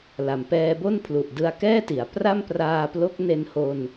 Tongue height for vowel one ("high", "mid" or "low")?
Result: low